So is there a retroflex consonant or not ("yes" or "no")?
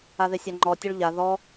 yes